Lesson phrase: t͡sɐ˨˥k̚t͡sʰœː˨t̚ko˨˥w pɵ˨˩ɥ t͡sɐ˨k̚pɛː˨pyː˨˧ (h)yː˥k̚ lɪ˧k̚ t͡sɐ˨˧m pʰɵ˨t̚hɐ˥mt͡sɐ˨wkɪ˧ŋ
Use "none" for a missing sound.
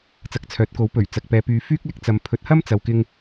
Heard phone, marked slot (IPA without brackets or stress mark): f